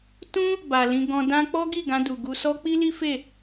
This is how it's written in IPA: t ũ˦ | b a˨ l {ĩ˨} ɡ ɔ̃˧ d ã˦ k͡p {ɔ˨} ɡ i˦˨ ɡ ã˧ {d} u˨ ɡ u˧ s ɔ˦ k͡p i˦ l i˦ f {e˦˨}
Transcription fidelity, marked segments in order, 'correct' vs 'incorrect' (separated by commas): incorrect, incorrect, correct, correct